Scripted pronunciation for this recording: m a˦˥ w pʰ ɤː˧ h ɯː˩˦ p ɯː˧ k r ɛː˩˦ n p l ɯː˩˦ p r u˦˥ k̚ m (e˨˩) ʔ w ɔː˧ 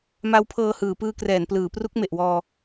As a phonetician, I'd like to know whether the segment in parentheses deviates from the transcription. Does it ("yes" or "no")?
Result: no